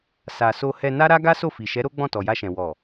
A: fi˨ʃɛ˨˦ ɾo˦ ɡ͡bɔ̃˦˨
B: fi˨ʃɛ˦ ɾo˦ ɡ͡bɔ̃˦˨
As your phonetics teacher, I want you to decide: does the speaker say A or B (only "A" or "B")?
A